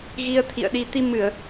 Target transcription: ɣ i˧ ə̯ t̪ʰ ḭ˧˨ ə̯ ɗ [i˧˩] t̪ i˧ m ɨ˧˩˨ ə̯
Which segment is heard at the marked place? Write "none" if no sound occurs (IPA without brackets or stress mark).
i˧